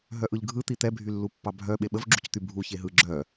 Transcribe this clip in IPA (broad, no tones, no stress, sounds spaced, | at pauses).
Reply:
ɦ œ ʔ ɯ ʎ ɡʱ ɯ t̪ i t̪ ɛ bʱ y lː u pː ɑ bʱ œ ɓ e ɓ ə v ɡ͡ǁ u c t̪ y bʱ u ç e ɦ ɯ ɡ͡ǁ œ